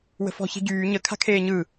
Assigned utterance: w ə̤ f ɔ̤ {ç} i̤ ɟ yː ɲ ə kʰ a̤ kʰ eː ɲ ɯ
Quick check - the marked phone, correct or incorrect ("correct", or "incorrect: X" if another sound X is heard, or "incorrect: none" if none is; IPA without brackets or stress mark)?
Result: correct